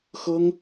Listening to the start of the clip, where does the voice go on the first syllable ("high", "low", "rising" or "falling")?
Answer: high